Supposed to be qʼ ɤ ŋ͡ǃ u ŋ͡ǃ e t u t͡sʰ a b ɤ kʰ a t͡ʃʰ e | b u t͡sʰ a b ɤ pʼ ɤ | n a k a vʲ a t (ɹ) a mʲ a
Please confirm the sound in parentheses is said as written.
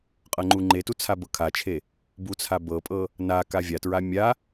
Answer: yes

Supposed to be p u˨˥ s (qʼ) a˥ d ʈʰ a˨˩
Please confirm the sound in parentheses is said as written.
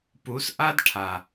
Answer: no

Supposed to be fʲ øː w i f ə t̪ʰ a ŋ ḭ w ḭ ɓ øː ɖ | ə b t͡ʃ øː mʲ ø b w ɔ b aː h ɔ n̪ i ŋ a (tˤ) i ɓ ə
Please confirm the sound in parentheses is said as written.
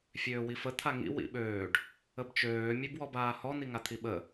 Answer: no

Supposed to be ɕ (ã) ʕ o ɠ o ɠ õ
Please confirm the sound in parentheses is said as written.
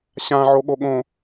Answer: yes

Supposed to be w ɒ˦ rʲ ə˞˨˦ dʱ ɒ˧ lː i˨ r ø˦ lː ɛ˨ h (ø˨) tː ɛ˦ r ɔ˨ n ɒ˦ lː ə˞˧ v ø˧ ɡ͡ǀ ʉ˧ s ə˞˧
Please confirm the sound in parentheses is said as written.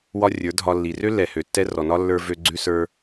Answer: yes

